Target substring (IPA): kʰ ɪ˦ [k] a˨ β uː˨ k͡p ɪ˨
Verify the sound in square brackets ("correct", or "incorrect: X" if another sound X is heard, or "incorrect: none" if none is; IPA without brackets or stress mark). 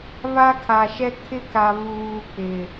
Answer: correct